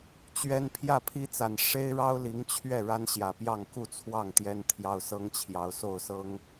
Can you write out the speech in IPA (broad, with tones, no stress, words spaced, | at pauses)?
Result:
t͡ɕɥɛ˦n pʰjä˥˨pʰi˦t͡sa˨˩n ʂe˦ɪ̯ɻɑ˦ʊ̯li˨˦ŋt͡ɕʰɥɛ˥˨ ɻa˦nɕjä˨˩pjɑ˥˨ŋ ku˥˨ t͡sʰwɑ˥˨ŋ t̪jɛ˦n t̪ʰjɑ˦ʊ̯ sɤ˦ŋt͡ɕʰjɑ˨˦ʊ̯so˥˨ʊ̯ sɤ˦ŋ